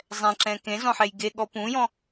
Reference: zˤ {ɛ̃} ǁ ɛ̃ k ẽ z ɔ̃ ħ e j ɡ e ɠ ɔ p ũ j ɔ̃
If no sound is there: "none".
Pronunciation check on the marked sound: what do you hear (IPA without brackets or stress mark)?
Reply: ɛ̃